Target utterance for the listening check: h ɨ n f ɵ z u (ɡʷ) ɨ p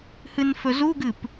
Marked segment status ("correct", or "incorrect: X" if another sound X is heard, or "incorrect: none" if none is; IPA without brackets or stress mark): incorrect: ɡ